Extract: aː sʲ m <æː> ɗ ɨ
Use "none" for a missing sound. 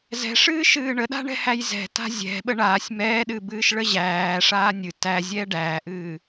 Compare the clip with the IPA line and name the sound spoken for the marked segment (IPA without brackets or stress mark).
ɛː